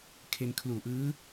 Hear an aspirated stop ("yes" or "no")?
yes